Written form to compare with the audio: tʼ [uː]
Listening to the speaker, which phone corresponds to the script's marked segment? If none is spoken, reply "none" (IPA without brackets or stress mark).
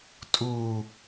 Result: uː